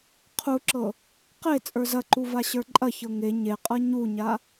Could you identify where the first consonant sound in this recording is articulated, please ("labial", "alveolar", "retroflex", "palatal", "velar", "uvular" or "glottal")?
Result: uvular